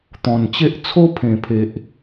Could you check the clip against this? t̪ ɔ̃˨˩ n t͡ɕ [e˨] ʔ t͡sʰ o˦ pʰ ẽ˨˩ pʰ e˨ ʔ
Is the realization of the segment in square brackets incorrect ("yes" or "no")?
yes